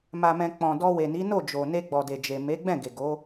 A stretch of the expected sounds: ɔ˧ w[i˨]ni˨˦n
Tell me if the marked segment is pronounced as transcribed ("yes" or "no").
no